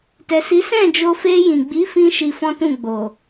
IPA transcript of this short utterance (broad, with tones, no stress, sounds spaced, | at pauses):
t ɛ˨ s i˨˦ s ɛ̃˦˨ d͡ʒ o˧ f e˧ j ĩ˨ ɡ͡b i˨˦ f ĩ˧ ʃ i˧ f ɔ̃˦ t ũ˦˨ ɡ͡b o˨